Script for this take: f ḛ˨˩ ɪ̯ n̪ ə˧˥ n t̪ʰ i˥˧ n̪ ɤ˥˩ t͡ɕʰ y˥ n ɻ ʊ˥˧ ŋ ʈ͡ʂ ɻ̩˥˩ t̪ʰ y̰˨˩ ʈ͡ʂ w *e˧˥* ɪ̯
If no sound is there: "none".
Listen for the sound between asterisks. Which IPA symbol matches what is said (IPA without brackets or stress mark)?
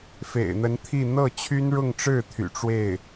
e˥˩